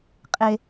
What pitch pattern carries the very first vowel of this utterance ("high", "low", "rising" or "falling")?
high